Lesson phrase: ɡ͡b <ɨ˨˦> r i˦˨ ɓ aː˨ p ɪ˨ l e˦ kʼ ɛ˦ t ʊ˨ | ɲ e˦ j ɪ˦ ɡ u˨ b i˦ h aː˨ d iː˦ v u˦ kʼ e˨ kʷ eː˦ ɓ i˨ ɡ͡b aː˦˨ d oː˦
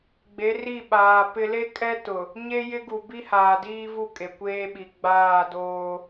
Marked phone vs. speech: incorrect: e˨˦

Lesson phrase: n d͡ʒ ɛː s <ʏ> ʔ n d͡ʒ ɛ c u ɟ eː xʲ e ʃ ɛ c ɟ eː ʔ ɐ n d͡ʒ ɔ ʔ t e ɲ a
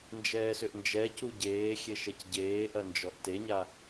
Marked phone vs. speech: correct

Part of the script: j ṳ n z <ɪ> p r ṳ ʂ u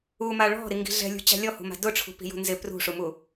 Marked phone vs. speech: correct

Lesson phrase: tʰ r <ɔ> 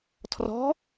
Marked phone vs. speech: incorrect: ɔ̤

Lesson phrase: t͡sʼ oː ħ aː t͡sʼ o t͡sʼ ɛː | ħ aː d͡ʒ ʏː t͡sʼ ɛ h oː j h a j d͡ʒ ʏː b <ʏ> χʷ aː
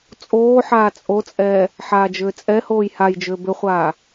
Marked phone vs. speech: correct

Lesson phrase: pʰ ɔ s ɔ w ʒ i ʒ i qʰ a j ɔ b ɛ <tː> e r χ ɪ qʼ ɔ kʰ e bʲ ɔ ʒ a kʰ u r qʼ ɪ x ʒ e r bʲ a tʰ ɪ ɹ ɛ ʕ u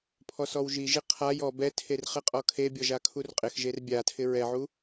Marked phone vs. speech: incorrect: tʰ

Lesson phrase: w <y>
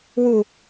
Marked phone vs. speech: incorrect: u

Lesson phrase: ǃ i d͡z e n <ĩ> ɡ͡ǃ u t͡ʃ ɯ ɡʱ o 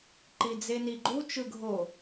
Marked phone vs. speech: incorrect: i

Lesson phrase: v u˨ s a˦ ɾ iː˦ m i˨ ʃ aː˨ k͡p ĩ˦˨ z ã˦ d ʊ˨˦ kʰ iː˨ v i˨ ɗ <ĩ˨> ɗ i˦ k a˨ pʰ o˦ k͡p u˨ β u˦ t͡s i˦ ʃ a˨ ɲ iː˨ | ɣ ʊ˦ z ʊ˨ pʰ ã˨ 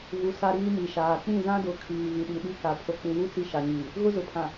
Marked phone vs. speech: incorrect: i˨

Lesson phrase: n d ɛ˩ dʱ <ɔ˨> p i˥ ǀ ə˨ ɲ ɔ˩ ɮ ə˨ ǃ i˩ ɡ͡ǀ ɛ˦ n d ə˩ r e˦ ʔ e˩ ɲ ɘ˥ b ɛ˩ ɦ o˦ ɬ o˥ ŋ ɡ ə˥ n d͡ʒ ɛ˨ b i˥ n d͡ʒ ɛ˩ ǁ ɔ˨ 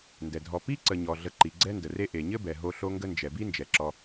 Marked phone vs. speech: correct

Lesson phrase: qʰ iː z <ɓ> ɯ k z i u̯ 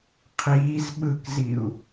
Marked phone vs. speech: correct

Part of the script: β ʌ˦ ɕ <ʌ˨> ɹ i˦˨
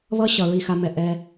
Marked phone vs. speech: correct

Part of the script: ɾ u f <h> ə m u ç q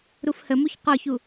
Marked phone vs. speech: correct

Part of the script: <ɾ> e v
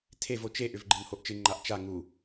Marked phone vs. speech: incorrect: tʰ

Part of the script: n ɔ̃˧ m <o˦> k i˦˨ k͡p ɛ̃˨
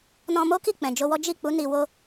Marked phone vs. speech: correct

